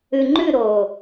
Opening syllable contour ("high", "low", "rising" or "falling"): low